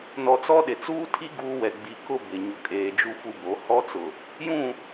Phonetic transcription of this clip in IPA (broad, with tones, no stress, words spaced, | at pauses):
nɔ˨t͡sɔ˦ɗɪ˨ t͡suː˦tʰi˦ ɡuː˦wɛ˨ ɡ͡bi˨kʊ˦ bɪ˨ ɲʊ˨kʼeː˨d͡ʒu˦ fu˦bo˨˦ hɔ˦t͡sʊ˨ | jũ˦˨